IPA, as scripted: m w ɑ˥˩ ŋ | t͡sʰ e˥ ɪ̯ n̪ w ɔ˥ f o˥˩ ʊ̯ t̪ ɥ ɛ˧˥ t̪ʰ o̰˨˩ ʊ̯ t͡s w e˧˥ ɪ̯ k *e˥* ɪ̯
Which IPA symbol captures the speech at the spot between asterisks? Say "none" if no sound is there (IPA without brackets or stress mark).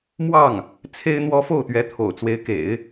ḛ˨˩˦